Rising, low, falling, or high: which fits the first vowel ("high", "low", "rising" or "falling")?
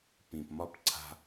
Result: low